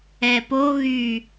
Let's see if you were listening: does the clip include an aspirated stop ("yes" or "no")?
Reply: no